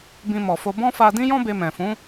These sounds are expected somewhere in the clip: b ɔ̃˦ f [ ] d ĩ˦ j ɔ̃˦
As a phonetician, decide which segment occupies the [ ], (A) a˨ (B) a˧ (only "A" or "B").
B